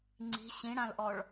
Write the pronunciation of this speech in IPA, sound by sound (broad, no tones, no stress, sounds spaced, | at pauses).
ŋ͡ǀ i̤ ɕ ĩ ɽ ã l ʔ ɔ ɭ